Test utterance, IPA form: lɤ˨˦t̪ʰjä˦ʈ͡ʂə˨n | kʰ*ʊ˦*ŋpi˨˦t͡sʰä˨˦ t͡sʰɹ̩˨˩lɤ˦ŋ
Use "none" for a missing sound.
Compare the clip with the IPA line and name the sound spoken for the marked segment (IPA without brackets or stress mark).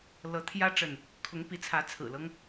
ʊ˨˦